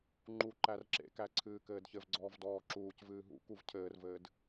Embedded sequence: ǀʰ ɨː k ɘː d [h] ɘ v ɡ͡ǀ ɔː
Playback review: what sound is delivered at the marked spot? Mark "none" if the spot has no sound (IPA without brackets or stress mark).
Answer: ç